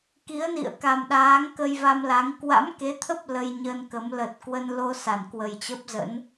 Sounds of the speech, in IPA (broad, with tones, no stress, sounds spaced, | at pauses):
k i˨˦ ə̯ n ḭ˧˨ ə̯ k a˨˩ m ɗ aː˨˦ ŋ k ə˧ j v a˧ m l a˨˦ ŋ k w a̰˧˥ m k e˨˦ t̪ʰ ə˦˥ p̚ l ə˧ j ɲ ə˧ n k ə˨˦ m l ə˨˩ t̚ k w ə˧ n l o˧ s a˧˩ n k w ə˨˩ j t͡ɕ ə˦˥ p̚ z ə̰˧˥ n